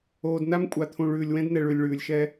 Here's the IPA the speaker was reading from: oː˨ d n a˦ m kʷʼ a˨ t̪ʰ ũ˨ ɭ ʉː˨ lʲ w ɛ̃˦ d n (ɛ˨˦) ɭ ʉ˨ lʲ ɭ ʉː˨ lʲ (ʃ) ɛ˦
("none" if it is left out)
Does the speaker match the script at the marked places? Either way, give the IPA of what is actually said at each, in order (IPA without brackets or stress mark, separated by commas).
ɛ˨, ʃ